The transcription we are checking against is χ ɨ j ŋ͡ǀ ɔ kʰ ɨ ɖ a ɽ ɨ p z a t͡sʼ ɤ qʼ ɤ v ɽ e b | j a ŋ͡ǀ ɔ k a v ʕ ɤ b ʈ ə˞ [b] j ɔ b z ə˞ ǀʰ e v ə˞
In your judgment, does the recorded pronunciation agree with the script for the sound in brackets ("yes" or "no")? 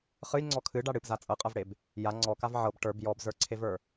yes